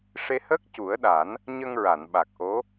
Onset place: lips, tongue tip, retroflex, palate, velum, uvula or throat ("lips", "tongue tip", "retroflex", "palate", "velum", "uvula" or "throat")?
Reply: retroflex